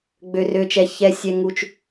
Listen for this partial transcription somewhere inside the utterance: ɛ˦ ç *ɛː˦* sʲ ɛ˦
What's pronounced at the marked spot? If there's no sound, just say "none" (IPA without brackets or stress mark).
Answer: ɛ˦